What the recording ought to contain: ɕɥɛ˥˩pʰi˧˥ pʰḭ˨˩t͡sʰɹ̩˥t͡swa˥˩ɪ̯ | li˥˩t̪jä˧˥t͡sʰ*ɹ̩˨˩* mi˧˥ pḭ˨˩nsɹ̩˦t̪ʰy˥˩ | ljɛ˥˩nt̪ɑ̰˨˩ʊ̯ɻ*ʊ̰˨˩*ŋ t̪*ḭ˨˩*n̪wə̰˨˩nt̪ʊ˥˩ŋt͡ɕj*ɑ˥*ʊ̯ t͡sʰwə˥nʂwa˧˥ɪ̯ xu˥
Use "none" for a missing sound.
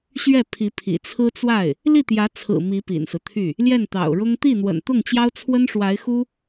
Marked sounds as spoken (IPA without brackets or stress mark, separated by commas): ɹ̩˨˩, ʊ˥, i˥˩, ɑ˥